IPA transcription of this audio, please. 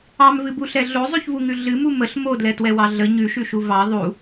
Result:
ɑ m v ɨ b u ɬ ɛ ɮ o zˤ ʉ ç v u ŋ ʉ ɮ ɨ m u m ə ɬ m o d l ɛ t w ɛ w ɑ ɮ ə ɲ ʉ ʃ ʉ ʃ u v ɑ ðˤ u

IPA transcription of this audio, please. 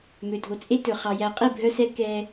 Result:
m ø˨ dʱ o˨ t͡sʼ e˦ t ɵ˨ χ ɑ˨ j æ˨ qʼ i˦˨ bʱ œ˦ s ɛ˦ k ɛː˦

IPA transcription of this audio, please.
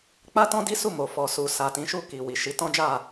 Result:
k͡p a˦ t ɔ̃˦ d i˦ s u˦˨ m o˨ f ɔ˨ s u˨ s a˨ t ĩ˨˦ ʃ u˦˨ k i˨ w i˨ ʃ i˨˦ t ɔ̃˦ d͡ʒ a˦˨

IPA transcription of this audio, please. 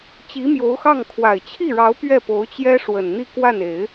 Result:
t͡ɕ i˧˥ m j o˧˥ ʊ̯ x ɑ˥˩ ŋ kʰ w a˨˩ ɪ̯ t͡ɕʰ i˥˩ ɻ ɑ˧˥ ʊ̯ p ɥ ɛ˥˩ p o˧˥ ʊ̯ t͡ɕ j ɛ˥ ʂ w ə˨˩ n n̪ i˥˧ k w a˥˩ n e˨˩˦ ɪ̯

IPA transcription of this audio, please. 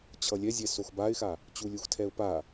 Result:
t͡ɕʰ ʌ lʲ ɛ zʲ ɛ s o x b a ɪ̯ x a | t͡ɕ u lʲ u x tʰ ɛ ʊ̯ p a

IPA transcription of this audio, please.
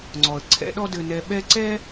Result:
ŋ͡ǀ ɔ˩ ə̯ ǀʰ ɛ̰˦ ɗ ɔ˦ d ɘ˨ n ɛ˨ ɓ ɛ˥ ǀ ɛ˥

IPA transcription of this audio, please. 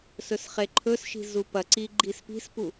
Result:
s ɵ s χ e ǃʰ ɵ s ʃ i̤ z u p ɐ ǀ i ɡ͡ǃ i s p i̤ s p u

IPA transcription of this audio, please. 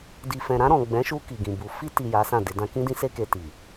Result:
d i˨ f ɛ̃˨ ɾ ã˧ ɾ ɔ̃˨ ɡ͡b ɛ̃˨˦ ʃ u˧ k i˨ ɡ ĩ˨ b u˨ f i˧ t i˨ j a˨˦ s ã˦˨ d e˧ d ã˦ k ĩ˦ d ĩ˦ s e˦ k e˧ t i˨

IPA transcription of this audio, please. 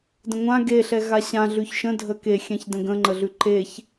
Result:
d ə̃ ŋʷ ã ɡ e ɬ ɛ ɣ a ɕ ã ɮ ʉ ç ʃ ə̃ dʱ ə k e xʲ ɛ̃ ç d ə̃ ɡ ə̃ ŋ͡ǃ ə ɮ ʉ ǃ e ç

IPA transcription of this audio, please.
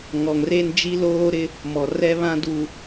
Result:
ŋ ɔ˨ ŋ r eː˦ n d͡ʒ i˦ l oː˦ ɾ ɪ˦ | m ɔ˨ r ɛ˦ β ã˦ d u˨

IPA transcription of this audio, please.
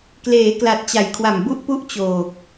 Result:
k l eː˩˦ k l a˨˩ t̚ t͡ɕ a˩˦ j kʰ w a˨˩ m b u˥˩ ʔ p u˥˩ ʔ t͡ɕ oː˨˩ k̚

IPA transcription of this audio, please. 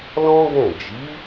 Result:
l ɔ̃˦ ɡ ɛ̃˦˨ d͡ʒ i˨˦

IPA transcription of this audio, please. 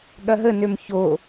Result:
ɠ ɐ ɦ ə n ø m ç o

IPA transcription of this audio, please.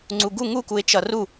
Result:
ŋ͡ǀ u ɡ u ŋ u k u ɪ̯ t͡ʃ ʌ r u

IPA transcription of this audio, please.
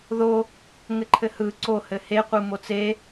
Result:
ð o | ŋ ɘ ǃʰ ɘ h ɯ ǀ o h ɘ h e qʷ ɯ m o t͡s e

